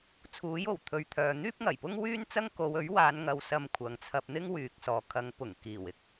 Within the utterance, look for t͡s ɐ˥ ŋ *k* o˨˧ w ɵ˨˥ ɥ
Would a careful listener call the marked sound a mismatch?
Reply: no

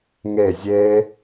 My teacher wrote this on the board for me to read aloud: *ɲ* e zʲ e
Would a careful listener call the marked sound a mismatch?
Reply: yes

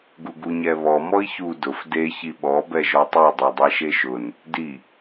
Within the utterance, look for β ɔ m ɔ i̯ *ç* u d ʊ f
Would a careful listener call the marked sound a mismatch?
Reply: no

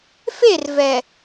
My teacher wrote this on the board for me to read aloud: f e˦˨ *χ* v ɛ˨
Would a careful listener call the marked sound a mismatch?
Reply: yes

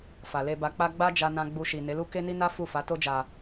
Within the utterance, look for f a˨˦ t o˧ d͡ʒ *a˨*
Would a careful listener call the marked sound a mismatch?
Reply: no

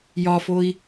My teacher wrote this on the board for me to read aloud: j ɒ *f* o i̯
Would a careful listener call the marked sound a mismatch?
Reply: no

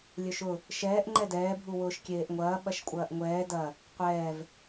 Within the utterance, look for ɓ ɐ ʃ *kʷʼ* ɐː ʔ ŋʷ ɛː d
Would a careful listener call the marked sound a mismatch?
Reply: no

